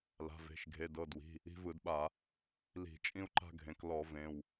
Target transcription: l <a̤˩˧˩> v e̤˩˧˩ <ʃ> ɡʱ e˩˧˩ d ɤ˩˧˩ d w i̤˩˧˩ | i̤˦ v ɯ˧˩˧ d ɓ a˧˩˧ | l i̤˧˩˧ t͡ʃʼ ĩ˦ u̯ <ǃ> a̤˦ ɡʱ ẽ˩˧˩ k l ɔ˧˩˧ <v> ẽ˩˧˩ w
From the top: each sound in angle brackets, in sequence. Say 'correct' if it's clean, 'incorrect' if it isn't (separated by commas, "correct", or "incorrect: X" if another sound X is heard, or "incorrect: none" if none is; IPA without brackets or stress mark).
correct, correct, correct, correct